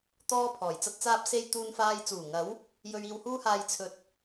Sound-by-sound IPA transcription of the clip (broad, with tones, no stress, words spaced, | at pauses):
t̪ɔː˥ pʰɔː˨˩j t͡sɐ˥t̚t͡saː˥p̚se˥j t̪uː˥nfaː˥j t͡suː˨˩ŋɐ˨˥w | jɵ˧ɥiː˧whuː˥haː˧j t͡sʰɵ˧t̚